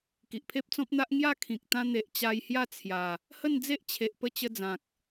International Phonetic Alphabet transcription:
k i˨ ʔ pʰ e˦ p̚ t͡s ɔ̃˦ p̚ n̪ a˦ ʔ ŋ j a˥˧ kʰ ĩ˨ k̚ t̪ ã˧ n̪ e˨ ʔ t͡ɕ a˧ j h j a˥˧ t͡sʰ j a˨˩ | h ə˥˧ n d͡z e˦ ʔ t͡ɕʰ e˨ ʔ p ə˧ t͡ɕ ə˧ d͡z ã˨ k̚

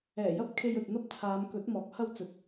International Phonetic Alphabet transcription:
ɛː˨˩ j ɐ˥ p̚ kʰ e˧ j ɵ˨ t̚ n̪ ɐ˥ p̚ t͡sʰ aː˨˧ m k ɵ˨˥ t̚ m ɔː˨˥ k̚ h ɐ˥ w t͡s ɵ˨˥ t̚

